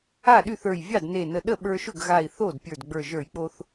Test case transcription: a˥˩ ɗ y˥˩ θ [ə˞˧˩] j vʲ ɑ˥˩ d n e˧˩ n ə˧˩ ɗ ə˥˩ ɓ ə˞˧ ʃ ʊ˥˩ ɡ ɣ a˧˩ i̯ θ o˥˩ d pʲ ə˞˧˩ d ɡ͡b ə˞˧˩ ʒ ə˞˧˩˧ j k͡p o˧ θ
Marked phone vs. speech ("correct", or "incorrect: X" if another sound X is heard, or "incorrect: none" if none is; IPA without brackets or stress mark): correct